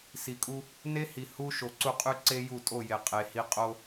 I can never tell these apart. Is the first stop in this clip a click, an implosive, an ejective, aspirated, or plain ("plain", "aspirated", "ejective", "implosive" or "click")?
ejective